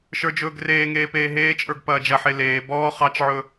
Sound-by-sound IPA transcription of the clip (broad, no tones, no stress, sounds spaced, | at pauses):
ʃ ə˞ d͡ʒ ɵː ɡ r eː ŋ eː p eː ɦ eː t͡ʃʼ ə˞ ɡ p ɐː d͡ʒ ɐ ħ e l eː b ɔː χ ɑ t͡ʃ ʕ ɵ